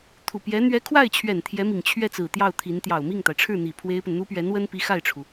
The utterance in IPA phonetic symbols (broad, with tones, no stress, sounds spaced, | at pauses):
t̪ʰ u˨˩ p j ɛ˧˥ n̪ ɥ ɛ˧˥ kʰ w a˥˩ ɪ̯ t͡ɕʰ ɥ ɛ˨˩ n t̪ʰ j ɛ˧˥ m i˨˩ ŋ t͡ɕʰ ɥ ɛ˥˩ t͡s ɹ̩˨˩ t̪ j ɑ˥˩ ʊ̯ t̪ʰ i˧˥ n t̪ j ɑ˨˩ ʊ̯ m i˥˩ ŋ t̪ a˩ ɪ̯ ʈ͡ʂʰ ɻ̩˥˩ n̪ i˨˩ pʰ w e˥ ɪ̯ p ə˨ n n̪ u˥ p ɥ ɛ˧˥ n w ə˥ n p i˧˥ x a˥˩ ɪ̯ ʈ͡ʂʰ u˩